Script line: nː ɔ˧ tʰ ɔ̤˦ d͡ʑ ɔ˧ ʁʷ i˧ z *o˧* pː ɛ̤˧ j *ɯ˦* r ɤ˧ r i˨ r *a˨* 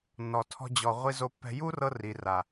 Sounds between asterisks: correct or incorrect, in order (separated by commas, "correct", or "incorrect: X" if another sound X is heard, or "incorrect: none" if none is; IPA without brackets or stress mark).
correct, incorrect: u˦, correct